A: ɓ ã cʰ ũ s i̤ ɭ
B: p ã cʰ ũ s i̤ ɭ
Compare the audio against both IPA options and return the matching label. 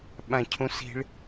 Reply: A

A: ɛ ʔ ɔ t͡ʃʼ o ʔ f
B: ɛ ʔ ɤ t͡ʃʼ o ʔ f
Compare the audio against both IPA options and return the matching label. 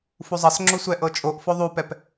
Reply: B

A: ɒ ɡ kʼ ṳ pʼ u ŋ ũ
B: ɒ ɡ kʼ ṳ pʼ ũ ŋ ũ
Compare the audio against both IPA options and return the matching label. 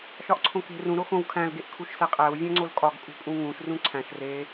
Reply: B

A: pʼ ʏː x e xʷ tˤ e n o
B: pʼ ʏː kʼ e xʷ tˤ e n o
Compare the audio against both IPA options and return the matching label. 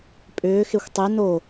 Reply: A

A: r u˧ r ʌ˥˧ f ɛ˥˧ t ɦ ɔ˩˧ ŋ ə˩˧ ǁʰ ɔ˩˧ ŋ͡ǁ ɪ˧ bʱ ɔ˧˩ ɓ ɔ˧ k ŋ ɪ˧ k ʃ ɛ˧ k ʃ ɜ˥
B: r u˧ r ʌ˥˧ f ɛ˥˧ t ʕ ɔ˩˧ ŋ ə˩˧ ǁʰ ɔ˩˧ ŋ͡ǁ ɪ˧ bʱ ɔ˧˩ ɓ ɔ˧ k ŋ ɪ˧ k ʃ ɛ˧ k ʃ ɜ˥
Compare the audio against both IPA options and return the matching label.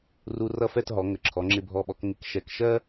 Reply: A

